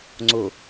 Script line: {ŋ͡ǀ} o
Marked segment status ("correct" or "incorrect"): correct